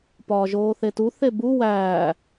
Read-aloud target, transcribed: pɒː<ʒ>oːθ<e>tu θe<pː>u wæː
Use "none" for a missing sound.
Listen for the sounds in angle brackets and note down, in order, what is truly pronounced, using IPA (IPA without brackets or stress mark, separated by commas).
ʒ, e, b